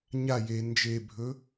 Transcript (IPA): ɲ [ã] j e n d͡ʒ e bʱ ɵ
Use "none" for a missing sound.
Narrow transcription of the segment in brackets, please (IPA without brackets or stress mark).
a